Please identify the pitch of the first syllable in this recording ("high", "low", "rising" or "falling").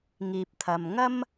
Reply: low